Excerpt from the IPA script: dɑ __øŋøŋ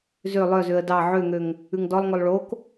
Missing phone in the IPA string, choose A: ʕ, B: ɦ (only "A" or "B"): A